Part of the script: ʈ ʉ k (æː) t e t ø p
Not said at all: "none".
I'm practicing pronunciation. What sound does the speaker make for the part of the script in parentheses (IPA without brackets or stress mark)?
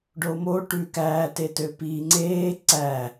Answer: æː